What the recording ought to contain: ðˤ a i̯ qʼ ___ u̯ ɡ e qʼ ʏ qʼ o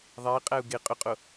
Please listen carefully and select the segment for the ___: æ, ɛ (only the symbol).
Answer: æ